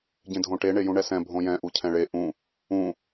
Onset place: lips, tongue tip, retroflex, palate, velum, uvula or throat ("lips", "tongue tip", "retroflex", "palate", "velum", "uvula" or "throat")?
palate